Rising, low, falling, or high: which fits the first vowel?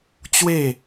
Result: falling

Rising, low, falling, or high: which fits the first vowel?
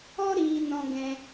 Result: high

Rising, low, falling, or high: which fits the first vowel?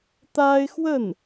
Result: high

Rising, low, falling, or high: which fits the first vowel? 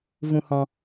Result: low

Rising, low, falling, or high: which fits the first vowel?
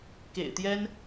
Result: low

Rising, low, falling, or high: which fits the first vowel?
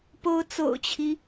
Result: rising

